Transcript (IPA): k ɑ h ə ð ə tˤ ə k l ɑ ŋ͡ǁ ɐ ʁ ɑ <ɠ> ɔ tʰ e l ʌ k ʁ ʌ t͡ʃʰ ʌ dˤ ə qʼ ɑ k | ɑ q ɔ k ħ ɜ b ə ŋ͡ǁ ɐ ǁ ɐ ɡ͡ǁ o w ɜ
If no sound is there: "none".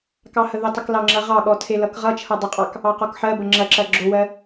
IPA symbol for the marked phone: ɠ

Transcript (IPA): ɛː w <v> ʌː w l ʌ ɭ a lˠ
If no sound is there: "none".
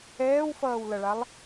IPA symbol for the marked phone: f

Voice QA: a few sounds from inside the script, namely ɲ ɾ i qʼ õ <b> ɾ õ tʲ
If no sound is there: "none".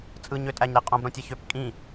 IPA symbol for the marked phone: b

